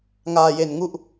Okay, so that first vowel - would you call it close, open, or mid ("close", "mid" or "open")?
open